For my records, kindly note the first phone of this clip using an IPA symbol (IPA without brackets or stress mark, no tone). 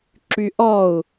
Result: ǁ